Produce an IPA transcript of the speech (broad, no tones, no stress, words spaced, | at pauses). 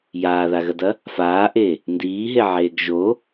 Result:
jaːðaɣɐdɐ | faːʔe | ndiːɦeʕeːɡ ʒo